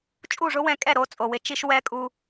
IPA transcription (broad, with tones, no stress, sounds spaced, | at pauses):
t͡ʃʼ u˦˨ ʐ ʊ˦ w ɛ̃˧ kʼ ɛ˦˨ ɾ o˨˦ t͡sʼ o˨ w ɪ˨˦ t͡ʃ i˧ ʃ w ɛ˧ kʼ u˧